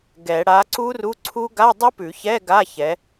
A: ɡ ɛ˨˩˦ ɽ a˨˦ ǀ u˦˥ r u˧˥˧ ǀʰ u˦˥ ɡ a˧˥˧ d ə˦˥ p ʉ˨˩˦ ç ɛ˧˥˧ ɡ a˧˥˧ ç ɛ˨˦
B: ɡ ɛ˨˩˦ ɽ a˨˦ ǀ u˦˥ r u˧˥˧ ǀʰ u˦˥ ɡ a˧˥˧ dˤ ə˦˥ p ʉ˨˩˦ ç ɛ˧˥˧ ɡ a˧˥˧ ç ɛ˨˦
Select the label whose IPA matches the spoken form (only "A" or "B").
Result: B